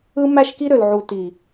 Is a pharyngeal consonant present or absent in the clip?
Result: present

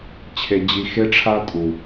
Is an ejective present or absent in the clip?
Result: present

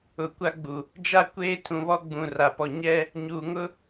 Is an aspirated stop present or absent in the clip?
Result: present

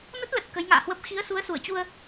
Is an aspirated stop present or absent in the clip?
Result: absent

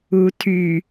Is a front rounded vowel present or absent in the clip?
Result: present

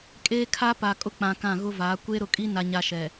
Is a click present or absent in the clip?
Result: absent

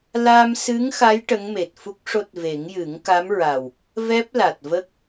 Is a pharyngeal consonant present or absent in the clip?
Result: absent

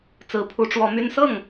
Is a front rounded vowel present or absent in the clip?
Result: present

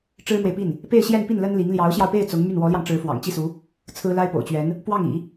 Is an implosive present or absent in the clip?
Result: absent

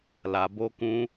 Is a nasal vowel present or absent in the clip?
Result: present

